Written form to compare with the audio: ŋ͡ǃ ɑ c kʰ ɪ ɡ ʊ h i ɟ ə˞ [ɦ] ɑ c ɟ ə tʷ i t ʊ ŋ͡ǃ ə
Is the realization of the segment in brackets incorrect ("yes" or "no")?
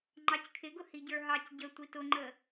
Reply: no